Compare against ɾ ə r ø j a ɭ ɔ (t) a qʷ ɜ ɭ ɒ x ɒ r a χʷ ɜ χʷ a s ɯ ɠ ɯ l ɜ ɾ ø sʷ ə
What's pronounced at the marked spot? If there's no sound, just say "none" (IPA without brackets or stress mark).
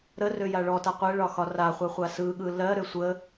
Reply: t